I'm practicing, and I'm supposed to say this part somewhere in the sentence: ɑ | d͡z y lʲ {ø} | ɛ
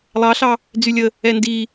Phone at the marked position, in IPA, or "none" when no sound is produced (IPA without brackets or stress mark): ə